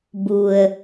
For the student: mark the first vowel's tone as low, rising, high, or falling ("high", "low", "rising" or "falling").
low